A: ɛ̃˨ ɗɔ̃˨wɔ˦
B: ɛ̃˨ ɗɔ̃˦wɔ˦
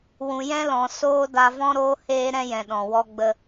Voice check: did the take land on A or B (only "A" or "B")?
A